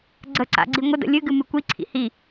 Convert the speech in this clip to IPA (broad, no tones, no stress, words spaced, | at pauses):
ɡ͡ǀəǀa̰ɡ͡ǀi ŋʷədə̰ lʲɨɡɨmɨ kʷiǀʰḭ hi